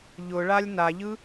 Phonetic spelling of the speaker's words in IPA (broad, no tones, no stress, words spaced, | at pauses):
ʎʊɭalʲ naʎɯ